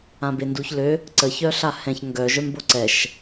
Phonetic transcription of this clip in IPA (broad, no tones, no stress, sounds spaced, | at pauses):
ã b e n d u ç l ø | ǀ ə ç œ ɬ a h ɛ̃ ç ŋ ɡ œ ʒ œ m b o ǀ ɛ ʃ